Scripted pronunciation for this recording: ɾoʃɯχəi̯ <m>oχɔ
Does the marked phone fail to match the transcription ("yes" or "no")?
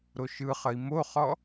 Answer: no